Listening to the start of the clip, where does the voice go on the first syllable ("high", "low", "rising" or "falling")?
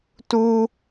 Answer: high